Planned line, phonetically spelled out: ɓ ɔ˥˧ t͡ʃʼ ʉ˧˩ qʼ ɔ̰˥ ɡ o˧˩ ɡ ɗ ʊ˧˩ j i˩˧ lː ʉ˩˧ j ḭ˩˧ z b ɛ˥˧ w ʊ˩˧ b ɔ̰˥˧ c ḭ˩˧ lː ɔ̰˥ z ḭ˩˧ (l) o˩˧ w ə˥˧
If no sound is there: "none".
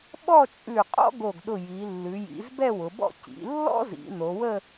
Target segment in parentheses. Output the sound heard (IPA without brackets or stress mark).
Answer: n